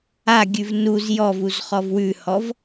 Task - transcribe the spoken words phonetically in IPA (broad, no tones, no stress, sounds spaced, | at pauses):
a ɡʲ ʉ v n u z j ɔ v u z χ ɔ v w ʉ h ɔ v